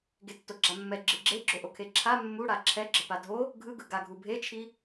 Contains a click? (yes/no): yes